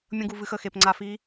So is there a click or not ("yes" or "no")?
yes